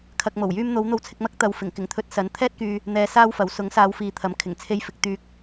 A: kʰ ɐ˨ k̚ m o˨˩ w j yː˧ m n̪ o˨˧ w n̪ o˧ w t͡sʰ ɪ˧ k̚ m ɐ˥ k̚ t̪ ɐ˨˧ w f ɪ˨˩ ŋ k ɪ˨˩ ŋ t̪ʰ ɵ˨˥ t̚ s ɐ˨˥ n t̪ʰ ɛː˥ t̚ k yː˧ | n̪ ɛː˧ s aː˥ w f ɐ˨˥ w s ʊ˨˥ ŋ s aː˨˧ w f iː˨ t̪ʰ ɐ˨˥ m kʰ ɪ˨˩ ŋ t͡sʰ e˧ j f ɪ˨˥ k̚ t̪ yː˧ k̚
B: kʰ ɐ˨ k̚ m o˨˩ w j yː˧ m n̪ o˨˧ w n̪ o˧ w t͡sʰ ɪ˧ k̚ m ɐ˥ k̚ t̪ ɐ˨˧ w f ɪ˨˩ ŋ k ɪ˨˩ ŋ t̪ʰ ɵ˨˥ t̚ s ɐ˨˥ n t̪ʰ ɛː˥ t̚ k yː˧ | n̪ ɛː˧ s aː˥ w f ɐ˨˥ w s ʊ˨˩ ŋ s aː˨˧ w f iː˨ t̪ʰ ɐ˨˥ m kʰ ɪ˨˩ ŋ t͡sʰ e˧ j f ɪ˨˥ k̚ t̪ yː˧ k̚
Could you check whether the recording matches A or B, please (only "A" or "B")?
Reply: A